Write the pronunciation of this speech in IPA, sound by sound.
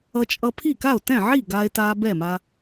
ʌ˧t͡ʃʼʌ˧ pʰi˥˩ka˥˩o̯tɛ̃˥˩ʕi˥˩ ɡaː˧e̯taː˧ bɛ˥˩ma˧

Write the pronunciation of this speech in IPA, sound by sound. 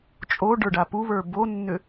t͡ʃʼo ɖə˞ɖapuβə˞ bonːʏ

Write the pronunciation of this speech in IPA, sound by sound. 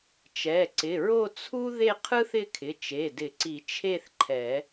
t͡ʃɛ˩˧˩ ǀɪ˩˧˩ɹo˥˧t͡sʰu˥ ðe˥˧qʰɯ˥θɪ˥˧kʰɪ˩˧˩ t͡ʃe˩˧˩dɪ˨˩˦ǀi˨˩˦ t͡ʃʰe˥˧θǃʰɛ˨˩˦

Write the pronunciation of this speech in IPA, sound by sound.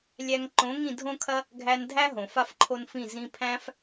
lʲæ˧ŋ ǃõ˨˦ŋĩ˦˨dʱõ˦kʰɐ˦ | ɡʱæ˧ndʱæ˦ ɦõ˨fa˦fǃʰo˦nfĩ˦˨ zĩ˧pʰæ̃˦f

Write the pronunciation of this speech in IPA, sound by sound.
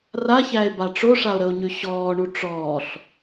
raçæe̯ba ʈ͡ʂoʂao̯ɾəo̯ɲʉ ɕɔːɳu ʈ͡ʂɔːɬ

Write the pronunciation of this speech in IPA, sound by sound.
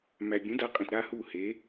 mæ˨ bʲũ˨˦da˨˦qʼẽ˨t ɾa˦ hu˦˨ he˨˦

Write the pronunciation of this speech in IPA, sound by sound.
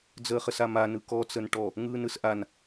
d͡zəːχəsama nɯkɔ t͡sənʈɔ | ŋɯːnɯsʔan

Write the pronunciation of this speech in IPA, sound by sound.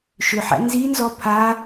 ʃʏħæ̰ nzinzɔ pʰa

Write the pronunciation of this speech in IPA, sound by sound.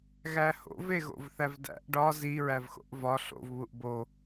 ɣæho̰v eɣo̰vθævdæ̰ʔ ɖɒ zi ɹævxo̰ʔvɒ ɬo̰v βuʔbo

